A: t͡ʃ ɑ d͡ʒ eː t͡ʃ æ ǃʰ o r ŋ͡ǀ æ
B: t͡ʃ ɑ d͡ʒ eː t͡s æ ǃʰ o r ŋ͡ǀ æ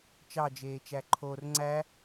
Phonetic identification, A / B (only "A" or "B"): A